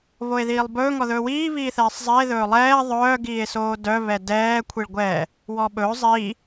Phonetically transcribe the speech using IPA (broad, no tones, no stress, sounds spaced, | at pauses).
β o e̯ ð iː lˠ b ɵː ŋ ɔ ð ɵː w iː β iː θ ɛː sˤ zˤ i e̯ ð ɵː lˠ ɛː ðˤ œː ɡ iː e̯ s oː d œ β ɛ d ɛː kʷʰ i ɭ ɡʷ ɛː | w ɔ ɓ ɵː zˤ iː